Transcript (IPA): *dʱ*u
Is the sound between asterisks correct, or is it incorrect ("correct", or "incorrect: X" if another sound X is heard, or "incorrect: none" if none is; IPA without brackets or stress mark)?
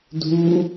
correct